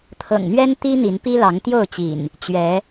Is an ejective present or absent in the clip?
absent